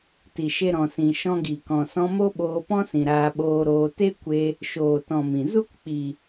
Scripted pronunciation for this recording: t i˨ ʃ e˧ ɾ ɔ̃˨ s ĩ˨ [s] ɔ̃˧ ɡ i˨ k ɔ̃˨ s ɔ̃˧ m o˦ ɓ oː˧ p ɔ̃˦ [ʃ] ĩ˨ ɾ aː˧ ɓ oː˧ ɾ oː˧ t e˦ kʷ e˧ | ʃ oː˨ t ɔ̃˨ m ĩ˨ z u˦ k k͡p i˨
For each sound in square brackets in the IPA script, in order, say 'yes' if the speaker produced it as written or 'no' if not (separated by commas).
no, no